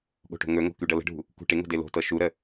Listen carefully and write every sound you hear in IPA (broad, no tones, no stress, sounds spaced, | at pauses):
ɠ o̤ ʈ o̤ ŋ ɵ ŋ o̤ k y ɖ ɤ l ə̤ ɖʱ ṳ | k ṳ ʈ ɪ ŋ o̤ d ɪ l o̤ t ɤ ʃ u ɾ ə